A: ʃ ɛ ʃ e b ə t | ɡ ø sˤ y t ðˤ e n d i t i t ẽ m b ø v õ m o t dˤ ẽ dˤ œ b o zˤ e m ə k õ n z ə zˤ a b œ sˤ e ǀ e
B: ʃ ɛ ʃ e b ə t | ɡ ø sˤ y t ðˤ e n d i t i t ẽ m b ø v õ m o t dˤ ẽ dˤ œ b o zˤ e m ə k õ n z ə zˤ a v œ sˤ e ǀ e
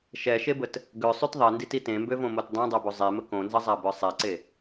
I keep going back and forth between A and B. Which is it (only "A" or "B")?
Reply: A